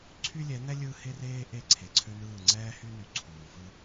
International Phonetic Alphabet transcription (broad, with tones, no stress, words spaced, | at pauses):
ǀʰy˦lʲɛ˨˦n̪ɛ˦ lʲɯ˦ he˦reː˦ ʔe˦˨ǀʰe˨ǀʰø˦nɯː˦˨ ŋ͡ǀɛː˦hy˦ny˨ ǀʰuː˨ fɯ˦